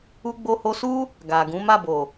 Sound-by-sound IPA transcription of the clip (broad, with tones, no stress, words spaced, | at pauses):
u˧ɡ͡bo˧ho˧su˦ | ɡa˨ɡũ˨˦ ma˦˨bo˨